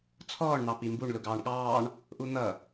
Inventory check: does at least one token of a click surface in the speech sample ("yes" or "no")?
no